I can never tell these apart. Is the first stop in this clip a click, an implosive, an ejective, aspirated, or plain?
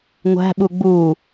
implosive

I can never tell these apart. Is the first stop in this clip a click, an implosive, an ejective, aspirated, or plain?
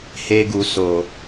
plain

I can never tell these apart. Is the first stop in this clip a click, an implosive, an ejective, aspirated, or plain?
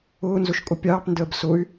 ejective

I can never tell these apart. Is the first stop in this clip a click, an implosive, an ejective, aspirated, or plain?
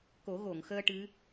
plain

